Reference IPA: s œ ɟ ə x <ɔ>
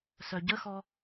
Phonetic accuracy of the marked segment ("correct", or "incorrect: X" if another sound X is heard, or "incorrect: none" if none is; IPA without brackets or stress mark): correct